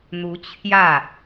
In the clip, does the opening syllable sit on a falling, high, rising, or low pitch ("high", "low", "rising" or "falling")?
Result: rising